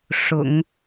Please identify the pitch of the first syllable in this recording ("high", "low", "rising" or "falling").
low